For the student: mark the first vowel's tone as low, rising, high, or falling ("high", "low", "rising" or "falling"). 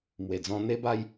low